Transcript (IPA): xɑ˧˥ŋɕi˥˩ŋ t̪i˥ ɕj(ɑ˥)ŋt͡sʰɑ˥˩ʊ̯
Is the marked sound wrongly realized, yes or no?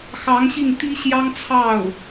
no